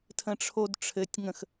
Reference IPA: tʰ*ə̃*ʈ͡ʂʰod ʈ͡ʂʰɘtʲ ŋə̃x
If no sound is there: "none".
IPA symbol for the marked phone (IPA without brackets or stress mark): ə̃